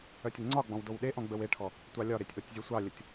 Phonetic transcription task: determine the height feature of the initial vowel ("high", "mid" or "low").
mid